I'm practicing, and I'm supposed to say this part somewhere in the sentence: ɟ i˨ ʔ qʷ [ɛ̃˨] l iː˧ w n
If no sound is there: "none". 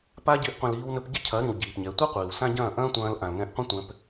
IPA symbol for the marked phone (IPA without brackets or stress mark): ɛ̃˨